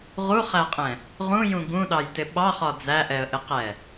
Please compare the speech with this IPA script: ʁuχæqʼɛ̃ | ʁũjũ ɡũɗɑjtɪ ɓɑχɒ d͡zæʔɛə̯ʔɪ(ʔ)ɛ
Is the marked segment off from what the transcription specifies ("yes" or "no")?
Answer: yes